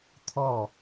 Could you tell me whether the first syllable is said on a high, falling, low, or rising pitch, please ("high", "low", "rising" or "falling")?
falling